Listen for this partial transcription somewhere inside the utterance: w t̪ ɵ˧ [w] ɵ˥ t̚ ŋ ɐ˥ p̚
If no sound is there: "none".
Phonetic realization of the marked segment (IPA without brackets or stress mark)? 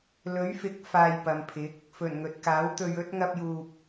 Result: ɥ